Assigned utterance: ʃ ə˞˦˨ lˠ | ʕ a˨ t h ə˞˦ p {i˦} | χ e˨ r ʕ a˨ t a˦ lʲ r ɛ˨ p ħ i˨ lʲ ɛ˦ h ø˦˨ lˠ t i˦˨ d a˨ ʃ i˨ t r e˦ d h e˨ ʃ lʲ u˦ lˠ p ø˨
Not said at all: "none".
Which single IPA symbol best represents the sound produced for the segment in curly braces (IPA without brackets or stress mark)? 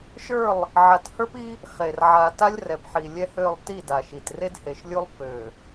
i˦